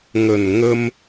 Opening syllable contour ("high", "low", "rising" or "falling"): low